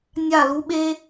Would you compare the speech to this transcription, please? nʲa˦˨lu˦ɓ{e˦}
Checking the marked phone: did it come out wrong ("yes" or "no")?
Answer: no